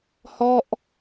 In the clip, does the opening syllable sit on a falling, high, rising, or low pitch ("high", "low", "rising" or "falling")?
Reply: falling